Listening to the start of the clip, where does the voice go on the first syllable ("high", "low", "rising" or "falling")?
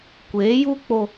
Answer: rising